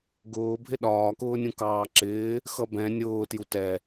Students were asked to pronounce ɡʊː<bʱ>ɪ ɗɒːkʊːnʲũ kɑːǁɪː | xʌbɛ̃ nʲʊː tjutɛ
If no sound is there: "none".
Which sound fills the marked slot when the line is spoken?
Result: bʱ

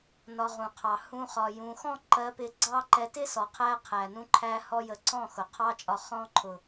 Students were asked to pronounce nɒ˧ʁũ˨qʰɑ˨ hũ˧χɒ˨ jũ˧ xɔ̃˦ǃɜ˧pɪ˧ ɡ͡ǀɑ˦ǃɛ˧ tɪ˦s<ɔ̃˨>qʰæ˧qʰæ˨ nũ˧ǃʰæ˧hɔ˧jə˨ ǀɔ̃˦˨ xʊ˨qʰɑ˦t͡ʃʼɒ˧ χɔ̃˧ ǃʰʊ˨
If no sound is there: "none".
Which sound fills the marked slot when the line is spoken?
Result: ɔ˨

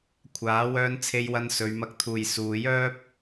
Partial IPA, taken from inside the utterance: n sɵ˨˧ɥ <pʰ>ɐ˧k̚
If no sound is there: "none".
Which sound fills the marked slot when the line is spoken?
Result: m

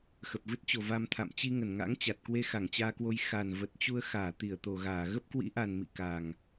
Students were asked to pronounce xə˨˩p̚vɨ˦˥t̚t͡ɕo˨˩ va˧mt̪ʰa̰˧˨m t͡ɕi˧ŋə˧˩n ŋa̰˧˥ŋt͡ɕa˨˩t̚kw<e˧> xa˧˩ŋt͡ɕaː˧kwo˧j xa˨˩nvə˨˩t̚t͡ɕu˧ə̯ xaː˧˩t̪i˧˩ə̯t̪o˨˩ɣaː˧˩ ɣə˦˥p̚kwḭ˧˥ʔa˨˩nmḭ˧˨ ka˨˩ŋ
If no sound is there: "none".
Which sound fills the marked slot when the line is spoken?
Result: e˧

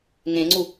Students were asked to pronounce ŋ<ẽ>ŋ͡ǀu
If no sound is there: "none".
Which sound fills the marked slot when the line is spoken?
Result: ẽ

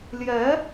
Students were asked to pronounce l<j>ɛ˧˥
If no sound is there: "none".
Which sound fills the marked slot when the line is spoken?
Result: j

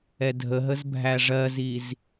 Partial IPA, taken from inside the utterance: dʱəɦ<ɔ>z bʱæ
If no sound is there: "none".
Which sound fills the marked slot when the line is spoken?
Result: ə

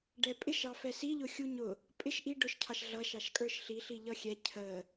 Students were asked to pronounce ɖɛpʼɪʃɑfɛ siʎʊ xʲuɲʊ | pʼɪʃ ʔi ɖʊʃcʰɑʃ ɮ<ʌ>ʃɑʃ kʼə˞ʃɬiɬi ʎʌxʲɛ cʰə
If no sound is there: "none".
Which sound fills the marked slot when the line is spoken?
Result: ʌ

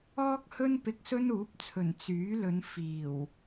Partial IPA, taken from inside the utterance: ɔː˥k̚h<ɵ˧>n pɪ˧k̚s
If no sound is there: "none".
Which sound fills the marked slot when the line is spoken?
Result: ɵ˥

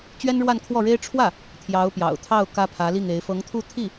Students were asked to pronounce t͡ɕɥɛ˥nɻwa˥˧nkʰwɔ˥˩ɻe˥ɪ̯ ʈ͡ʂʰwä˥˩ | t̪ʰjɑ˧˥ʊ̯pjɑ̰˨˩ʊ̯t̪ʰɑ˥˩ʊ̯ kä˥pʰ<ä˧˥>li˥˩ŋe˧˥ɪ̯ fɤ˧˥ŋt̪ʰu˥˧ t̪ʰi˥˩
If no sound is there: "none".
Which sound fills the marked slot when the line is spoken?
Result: ä˧˥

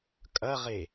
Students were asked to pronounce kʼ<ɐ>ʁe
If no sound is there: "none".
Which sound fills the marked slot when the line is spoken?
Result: ɐ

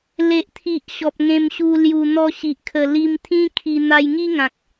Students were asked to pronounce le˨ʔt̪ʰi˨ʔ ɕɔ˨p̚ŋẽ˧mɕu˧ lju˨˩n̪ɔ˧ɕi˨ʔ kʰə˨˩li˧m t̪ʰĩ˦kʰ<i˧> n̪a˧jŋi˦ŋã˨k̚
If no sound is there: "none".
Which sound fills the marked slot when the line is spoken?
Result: i˧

